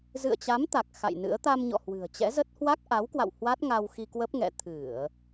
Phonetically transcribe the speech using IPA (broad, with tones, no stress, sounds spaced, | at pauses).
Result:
z ɨ̰˧˨ ə̯ t͡ɕ a˨˦ m t̪ a˨˩ k̚ x a̰˧˨ j n ɨ̰˧˥ ə̯ t̪ a˧ m ɲ ɔ̰˧˨ h w ɨ̤˨˩ ə̯ t͡ɕ ɛ̰˧˥ z ə˦˥ t̚ h w a˦˥ k̚ ʔ a˨˦ w k w a̰˧˨ w h w a˦˥ t̚ ŋ a˧ w x i˧ k w ə˦˥ p̚ ŋ ɛ̰˧˨ t̪ʰ ɨ˧˩˨ ə̯